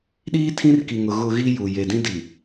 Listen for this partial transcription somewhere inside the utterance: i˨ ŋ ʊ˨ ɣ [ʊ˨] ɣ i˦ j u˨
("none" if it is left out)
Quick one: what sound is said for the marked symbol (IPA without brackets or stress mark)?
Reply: ʊ˨